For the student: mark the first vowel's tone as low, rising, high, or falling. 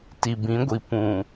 low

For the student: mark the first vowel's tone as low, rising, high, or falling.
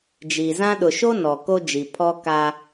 low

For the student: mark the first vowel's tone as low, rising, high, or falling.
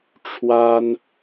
high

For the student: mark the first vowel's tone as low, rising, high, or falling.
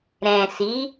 low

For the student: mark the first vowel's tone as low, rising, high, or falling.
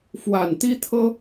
low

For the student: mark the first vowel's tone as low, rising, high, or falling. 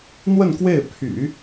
falling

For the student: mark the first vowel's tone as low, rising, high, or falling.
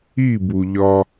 falling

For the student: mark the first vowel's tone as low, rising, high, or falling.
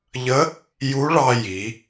rising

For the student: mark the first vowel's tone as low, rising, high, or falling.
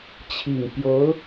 low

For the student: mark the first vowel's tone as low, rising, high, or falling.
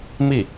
falling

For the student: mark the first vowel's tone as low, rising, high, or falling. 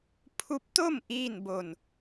rising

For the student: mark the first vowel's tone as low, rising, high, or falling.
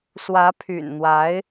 rising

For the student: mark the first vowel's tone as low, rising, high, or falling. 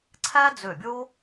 high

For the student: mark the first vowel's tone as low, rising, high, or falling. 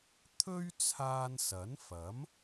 high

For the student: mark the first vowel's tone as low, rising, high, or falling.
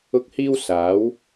high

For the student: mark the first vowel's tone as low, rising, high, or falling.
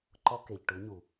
high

